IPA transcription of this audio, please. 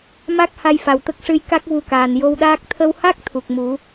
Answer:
ma˦˥k̚ha˧j fa˨˩wt̪ə˦˥k̚ ʂɨ˧jka˦˥k̚ vu˧kaː˨˩n jo˧wɗaː˦˥k̚ t̪ʰə˧wha˦˥k̚ t̪ʰu˨˩k̚mu˨˩˦

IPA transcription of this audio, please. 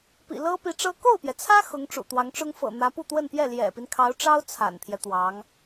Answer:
pḭ˨˩lɤ˥pi˧˥ʈ͡ʂɤ˥ ko˥˩ʊ̯pjɛ˩t͡sʰä˥ xʊ˧˥ŋʈ͡ʂṵ˨˩t̪wɑ˧˥ŋʈ͡ʂʊ˥ŋ fɤ̰˨˩ n̪ä˧˥pu˥˧t̪wə˥˧npjɛ˥˩ ljɛ̰˨˩pi˦nkʰɑ˧˥ʊ̯ʈ͡ʂɑ˥ʊ̯ t͡sʰa̰˨˩nt̪ʰjɛ˦t̪wɑ˧˥ŋ

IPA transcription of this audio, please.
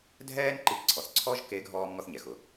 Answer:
dʱɛː˥nǃi˧ǀʰɔ˩θǀʰɔ˥ʒ ke˧˥ɡʱɔː˧m ŋɔ˧θɲɛ˩xʊ˩

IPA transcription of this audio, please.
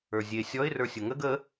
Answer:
ə˞zʲe sʲɔɪ̯ rə˞sʲʊŋəɡ ə

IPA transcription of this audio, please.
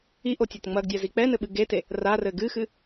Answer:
iʔotʲot ŋ͡mɐɡdʲazi k͡pɛnɘɓɨ ɡete | rarɘ ɡɨxɨ

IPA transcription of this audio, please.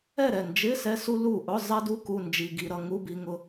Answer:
ɛ˥˨ɾɛ˥˨ nd͡ʒɪ˧˥˧ sɛ˧su˧ lu˥˨ ʔʊ˧˥˧ zˤɛ˧du˧ ku˧˥˧nd͡ʒi˧ɡi˧ ɾʌ˧ ŋu˧˥˧bi˧ŋʊ˧

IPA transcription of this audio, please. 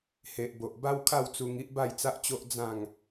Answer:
he˨ʔbo˨ʔ ba˦wkʰa˥˧wt͡su˧ŋi˦ʔ ba˥˧jt͡sa˦ʔt͡ɕo˦ʔ d͡zã˥˧ŋ

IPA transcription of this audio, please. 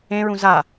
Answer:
ẽɹũ za

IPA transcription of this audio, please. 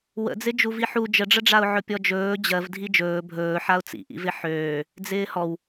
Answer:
wə̰d͡zɪ d͡ʒuviħu d͡ʒəɖ͡ʐəɖ͡ʐaʊ̯ ʕɵpʲɔd͡ʒɵː d͡ʑɜvdʱi d͡ʒɵː bʱɵː ħaʊ̯t͡sḭʔḭvɪ ħøː | d͡zɪːhɔw

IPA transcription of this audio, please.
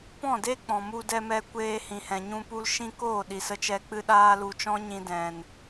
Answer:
pɔ̃˦˨de˦ k͡pɔ̃˨mu˧dɛ˧ mɛ˧kʷeː˧hĩ˨hɛ̃˨ ɲũ˦pu˦l ʃĩ˦ koː˦˨ɗi˨sə˧t͡ʃɛ˧ k͡pɨ˦ɗaː˦ lu˧t͡ʃɔ̃˦ɲĩ˧ dɛ̃˨n

